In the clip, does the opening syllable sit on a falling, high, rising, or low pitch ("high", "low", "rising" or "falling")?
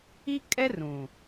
high